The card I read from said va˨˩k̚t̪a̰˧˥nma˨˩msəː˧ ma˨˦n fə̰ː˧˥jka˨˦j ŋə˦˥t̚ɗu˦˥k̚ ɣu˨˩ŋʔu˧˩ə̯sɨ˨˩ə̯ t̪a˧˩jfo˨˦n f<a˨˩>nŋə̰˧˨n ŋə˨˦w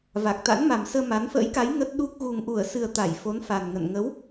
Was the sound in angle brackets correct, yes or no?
yes